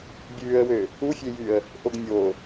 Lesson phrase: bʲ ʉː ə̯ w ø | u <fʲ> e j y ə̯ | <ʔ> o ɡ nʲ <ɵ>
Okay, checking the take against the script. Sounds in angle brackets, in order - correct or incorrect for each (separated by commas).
correct, correct, incorrect